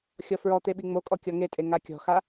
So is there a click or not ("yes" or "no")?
no